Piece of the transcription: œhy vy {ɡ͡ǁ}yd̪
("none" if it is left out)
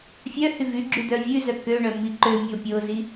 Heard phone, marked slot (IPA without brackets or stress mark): ɡ͡ǁ